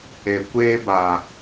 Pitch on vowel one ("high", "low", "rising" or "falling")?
low